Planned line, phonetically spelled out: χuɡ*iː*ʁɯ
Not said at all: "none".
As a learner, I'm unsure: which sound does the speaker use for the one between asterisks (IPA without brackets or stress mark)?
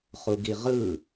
i